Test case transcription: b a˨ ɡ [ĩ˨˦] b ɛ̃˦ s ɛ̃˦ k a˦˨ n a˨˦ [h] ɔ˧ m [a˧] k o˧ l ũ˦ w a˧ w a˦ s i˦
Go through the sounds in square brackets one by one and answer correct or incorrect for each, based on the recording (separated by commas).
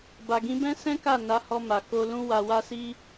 correct, correct, incorrect